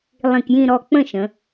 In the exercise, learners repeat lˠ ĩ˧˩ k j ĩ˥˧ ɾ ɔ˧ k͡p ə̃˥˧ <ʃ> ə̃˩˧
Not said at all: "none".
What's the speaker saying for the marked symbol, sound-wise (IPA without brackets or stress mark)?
ʃ